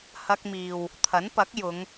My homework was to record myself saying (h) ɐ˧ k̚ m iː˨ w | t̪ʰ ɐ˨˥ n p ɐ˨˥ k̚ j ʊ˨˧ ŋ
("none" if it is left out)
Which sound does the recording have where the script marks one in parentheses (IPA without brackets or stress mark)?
h